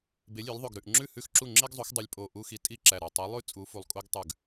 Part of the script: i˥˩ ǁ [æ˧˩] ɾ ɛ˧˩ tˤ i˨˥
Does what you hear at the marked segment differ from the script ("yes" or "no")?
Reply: no